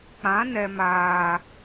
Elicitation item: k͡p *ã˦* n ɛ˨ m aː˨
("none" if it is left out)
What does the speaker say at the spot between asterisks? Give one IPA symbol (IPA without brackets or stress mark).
ã˨˦